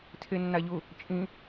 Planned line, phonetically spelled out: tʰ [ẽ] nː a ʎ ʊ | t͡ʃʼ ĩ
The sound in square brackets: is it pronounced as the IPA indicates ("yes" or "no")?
no